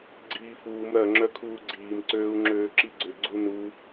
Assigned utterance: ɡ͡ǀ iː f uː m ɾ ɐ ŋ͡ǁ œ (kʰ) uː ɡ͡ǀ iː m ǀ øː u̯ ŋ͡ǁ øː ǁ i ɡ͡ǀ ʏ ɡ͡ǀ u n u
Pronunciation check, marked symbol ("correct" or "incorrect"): correct